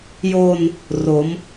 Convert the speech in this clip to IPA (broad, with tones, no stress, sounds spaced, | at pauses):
j o˧ n | r o˩˦ m